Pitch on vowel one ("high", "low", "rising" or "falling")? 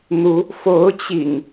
rising